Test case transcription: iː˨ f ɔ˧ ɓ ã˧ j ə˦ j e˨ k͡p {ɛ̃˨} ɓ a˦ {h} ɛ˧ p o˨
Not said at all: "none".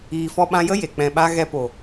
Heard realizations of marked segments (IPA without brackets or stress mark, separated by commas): ɛ̃˨, ɣ